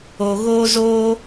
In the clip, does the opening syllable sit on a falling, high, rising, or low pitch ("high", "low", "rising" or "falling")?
low